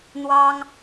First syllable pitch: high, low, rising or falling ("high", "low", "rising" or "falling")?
high